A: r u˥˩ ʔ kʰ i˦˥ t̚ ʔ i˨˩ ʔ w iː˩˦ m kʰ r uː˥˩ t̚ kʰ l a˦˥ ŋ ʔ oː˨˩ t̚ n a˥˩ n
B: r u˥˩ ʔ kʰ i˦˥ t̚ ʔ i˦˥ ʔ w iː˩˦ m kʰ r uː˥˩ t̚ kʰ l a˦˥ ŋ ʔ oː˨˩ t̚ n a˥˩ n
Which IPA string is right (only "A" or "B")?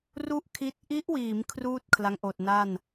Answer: B